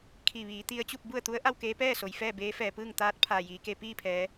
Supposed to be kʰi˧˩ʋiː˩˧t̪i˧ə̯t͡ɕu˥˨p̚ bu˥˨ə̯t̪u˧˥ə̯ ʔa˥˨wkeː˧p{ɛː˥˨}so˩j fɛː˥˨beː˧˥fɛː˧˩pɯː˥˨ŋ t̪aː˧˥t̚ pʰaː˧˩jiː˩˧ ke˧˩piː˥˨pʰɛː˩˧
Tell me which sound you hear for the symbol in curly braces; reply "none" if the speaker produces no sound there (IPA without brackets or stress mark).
ɛː˥˨